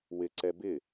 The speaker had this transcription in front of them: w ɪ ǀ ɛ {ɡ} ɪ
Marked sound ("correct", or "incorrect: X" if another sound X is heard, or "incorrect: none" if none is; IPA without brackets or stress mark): incorrect: b